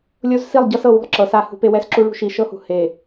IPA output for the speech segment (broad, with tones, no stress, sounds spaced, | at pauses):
lʲ o˦ z s i˦˨ lˠ ɟ ɤ˦ s ɤ˦˨ w ṳ˦˨ lˠ ǁ ɤ˨ s a˦˨ h ṳ˦ p e˦ w ɛ˦ s ǁ u˦ ɭ ṳ˦ ʃ i˨ ʃ ɤ˦ h ṳ˨ h e˨